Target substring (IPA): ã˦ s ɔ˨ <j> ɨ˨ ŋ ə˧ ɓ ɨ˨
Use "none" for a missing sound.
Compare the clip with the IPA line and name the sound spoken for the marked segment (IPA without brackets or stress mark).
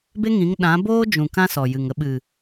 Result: j